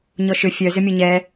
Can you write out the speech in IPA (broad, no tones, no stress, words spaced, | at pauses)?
ɲɔʃʏ fʲœ zʏmʲɔɲɛ